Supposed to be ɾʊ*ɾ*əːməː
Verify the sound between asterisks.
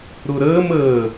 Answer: correct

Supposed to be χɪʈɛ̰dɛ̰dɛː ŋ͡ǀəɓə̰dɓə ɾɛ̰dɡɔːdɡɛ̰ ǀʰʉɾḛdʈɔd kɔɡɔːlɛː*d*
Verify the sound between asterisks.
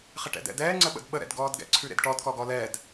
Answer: correct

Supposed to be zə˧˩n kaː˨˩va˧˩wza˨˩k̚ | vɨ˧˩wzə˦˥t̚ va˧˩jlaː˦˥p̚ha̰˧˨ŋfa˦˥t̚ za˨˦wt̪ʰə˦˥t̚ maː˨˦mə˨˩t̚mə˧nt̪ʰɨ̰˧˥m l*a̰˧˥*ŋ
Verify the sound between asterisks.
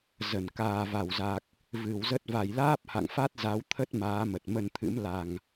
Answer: incorrect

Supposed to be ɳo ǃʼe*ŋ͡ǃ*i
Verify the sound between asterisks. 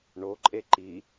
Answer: incorrect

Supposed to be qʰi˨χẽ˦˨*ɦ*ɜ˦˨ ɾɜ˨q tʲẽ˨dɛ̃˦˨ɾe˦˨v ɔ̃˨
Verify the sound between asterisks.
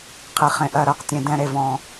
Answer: incorrect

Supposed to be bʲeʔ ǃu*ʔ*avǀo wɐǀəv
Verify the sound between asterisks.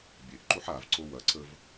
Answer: incorrect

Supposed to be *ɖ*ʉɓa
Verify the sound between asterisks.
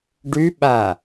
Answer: correct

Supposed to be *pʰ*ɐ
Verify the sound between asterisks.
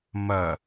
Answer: incorrect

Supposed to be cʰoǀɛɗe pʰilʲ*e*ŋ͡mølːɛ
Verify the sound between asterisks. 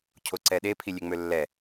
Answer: correct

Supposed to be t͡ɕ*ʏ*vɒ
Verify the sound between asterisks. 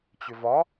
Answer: correct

